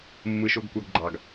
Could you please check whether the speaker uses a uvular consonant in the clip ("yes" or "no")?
no